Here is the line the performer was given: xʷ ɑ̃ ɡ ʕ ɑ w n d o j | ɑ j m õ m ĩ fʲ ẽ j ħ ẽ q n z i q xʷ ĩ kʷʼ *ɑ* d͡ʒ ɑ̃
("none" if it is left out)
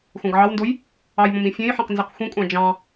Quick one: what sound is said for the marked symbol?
ɑ̃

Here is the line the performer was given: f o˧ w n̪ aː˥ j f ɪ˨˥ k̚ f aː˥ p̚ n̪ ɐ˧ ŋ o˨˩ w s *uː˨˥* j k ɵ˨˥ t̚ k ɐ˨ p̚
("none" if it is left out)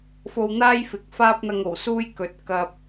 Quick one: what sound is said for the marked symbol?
uː˥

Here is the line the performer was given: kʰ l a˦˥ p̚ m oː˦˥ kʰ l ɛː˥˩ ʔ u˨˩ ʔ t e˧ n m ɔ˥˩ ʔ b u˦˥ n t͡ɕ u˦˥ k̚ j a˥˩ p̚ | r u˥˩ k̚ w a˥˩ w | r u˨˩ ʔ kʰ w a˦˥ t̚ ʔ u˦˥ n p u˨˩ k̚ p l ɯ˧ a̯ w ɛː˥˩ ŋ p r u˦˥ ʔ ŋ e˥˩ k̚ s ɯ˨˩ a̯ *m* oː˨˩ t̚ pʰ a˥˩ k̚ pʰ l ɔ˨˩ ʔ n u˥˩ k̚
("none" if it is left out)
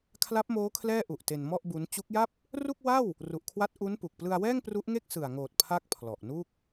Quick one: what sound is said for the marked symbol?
ŋ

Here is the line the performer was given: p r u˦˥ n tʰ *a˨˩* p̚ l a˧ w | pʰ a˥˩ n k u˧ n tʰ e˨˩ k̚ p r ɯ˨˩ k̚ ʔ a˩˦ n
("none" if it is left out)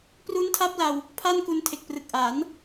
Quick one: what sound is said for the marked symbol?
a˦˥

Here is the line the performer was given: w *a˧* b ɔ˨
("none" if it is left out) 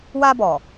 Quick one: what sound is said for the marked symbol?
a˧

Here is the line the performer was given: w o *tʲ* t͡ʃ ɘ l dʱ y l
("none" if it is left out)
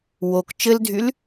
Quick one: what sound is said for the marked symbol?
k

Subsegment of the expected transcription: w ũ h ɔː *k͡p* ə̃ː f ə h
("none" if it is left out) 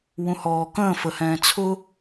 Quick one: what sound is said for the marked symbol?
k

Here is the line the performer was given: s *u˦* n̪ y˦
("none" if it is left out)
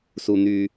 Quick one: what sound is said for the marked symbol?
u˦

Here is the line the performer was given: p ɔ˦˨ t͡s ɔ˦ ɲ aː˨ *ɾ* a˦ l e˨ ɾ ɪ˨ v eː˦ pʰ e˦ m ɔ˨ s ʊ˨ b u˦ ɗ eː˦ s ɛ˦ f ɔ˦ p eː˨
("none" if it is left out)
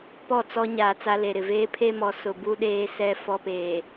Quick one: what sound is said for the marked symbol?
t͡s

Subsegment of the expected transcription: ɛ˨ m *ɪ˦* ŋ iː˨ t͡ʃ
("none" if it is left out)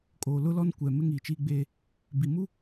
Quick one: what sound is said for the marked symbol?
ɪ˦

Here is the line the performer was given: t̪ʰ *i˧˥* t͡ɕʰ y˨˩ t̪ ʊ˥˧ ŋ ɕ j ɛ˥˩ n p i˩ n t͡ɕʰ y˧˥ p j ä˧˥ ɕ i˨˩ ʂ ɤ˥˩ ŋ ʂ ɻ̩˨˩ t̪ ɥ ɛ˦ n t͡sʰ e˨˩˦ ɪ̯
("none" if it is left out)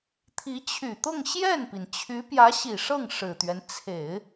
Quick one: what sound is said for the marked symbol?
i˧˥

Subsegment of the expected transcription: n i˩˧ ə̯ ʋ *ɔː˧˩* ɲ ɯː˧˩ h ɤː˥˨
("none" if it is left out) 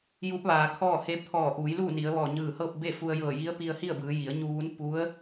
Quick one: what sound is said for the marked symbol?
ɔː˧˩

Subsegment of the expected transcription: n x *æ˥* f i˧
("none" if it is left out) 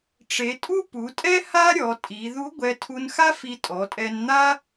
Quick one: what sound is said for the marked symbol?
a˥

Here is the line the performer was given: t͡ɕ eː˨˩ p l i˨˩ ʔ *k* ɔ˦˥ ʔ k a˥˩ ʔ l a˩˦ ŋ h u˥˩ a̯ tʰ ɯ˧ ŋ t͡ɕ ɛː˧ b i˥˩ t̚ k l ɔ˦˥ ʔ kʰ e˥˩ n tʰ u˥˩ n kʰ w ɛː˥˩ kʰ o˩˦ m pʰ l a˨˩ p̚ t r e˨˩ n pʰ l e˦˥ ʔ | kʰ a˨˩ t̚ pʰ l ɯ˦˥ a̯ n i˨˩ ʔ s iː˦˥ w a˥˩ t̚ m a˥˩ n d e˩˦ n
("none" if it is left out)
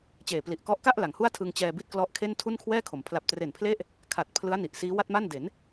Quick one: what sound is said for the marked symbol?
k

